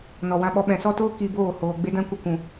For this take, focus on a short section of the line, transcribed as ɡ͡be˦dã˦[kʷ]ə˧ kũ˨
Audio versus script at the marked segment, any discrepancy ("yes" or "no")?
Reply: no